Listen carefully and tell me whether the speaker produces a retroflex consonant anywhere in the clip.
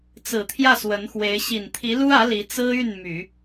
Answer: no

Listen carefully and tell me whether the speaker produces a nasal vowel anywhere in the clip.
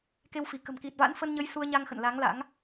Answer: no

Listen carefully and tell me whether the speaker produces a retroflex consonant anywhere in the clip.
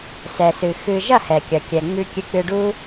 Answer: yes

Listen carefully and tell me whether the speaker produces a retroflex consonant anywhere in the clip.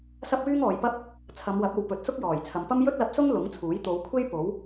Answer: no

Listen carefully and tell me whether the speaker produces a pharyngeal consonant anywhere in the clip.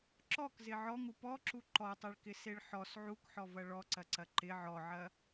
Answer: yes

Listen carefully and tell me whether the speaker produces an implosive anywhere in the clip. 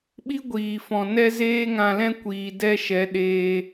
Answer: yes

